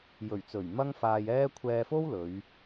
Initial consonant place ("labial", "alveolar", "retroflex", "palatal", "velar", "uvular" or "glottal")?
palatal